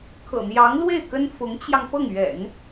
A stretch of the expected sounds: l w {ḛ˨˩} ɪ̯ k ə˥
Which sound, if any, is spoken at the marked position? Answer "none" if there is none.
e˥˩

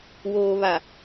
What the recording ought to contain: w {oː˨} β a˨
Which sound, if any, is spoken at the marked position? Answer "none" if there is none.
oː˨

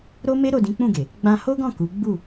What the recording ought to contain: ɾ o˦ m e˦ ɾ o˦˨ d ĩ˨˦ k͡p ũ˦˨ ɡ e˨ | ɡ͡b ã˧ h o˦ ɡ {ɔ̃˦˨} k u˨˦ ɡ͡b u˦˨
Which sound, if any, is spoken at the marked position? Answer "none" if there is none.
ɔ̃˦˨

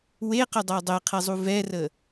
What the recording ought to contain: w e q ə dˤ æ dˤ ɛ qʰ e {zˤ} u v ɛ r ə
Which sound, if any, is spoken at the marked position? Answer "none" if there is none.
zˤ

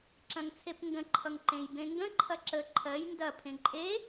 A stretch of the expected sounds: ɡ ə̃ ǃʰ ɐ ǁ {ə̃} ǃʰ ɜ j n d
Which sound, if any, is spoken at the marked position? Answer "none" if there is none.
ə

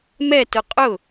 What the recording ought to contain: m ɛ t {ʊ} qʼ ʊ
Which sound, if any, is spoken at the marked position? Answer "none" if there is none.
ʊ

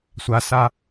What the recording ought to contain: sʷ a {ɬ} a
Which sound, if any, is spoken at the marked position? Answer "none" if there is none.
s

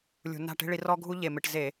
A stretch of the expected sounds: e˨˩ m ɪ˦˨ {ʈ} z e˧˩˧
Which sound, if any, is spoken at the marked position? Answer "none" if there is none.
ʈ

